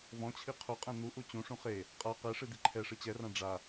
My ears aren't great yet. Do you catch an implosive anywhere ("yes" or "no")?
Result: no